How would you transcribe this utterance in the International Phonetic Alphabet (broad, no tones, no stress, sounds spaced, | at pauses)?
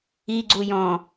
i ɡ͡ǀ u j ɔ̃